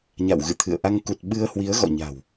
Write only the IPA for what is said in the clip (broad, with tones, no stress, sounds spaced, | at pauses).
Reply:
ɲ a̰˧˨ w ɣ ɨ̰˧˨ t̪ʰ ɨ̰˧˨ ə̯ ʔ a˧ ŋ k u˨˩ t̚ ɓ ɨ˧ ə̯ h w i˨˦ ə̯ ɣ ɔ̰˧˨ ɲ a̤˨˩ w